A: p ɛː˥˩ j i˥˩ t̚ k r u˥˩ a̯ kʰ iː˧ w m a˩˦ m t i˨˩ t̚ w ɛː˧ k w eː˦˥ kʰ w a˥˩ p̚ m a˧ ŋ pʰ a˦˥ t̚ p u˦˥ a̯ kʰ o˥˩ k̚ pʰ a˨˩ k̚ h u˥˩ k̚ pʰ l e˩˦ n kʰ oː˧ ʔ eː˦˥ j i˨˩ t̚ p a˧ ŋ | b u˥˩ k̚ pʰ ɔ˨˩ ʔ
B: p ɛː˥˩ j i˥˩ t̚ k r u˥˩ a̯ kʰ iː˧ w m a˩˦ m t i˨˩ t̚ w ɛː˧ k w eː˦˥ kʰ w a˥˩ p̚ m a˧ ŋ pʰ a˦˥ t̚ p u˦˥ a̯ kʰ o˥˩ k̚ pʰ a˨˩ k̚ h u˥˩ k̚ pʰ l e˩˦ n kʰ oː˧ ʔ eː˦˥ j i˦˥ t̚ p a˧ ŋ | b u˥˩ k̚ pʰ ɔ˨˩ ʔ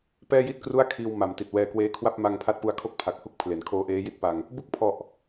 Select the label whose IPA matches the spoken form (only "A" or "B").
B